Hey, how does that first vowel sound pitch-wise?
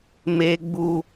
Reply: high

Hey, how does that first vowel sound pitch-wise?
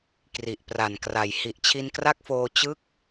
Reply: low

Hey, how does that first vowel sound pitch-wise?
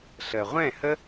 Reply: low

